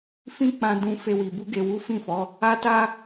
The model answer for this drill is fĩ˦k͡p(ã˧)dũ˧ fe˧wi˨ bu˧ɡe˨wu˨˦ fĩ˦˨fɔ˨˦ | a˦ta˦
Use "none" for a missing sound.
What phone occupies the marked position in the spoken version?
ã˧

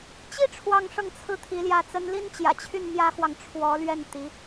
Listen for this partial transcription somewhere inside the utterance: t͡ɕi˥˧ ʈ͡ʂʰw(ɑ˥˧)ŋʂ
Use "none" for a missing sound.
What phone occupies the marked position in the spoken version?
ɑ˥˧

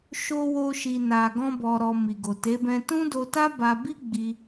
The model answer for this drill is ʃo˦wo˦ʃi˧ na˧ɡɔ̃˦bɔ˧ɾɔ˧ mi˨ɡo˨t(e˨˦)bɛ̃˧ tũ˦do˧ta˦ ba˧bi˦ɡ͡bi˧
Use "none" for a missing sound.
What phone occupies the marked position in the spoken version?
e˨˦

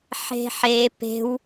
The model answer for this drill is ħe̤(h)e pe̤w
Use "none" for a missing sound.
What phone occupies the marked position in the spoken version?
ħ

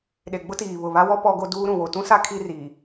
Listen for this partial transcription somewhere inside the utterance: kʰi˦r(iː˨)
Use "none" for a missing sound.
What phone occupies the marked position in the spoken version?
iː˨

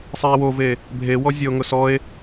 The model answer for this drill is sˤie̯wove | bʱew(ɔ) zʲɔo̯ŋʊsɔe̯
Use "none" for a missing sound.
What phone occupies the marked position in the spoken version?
ɔ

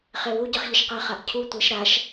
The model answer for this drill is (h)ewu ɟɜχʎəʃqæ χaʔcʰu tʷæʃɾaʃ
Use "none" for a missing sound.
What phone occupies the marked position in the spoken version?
χ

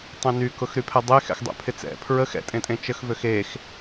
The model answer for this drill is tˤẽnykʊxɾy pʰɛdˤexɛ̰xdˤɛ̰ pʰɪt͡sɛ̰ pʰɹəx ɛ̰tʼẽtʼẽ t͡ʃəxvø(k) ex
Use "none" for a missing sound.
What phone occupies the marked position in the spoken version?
x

